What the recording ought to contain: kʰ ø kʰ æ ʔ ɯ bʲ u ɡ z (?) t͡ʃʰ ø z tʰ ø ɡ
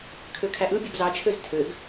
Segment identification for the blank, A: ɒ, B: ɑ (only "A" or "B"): B